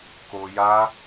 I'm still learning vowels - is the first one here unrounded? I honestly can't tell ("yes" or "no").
no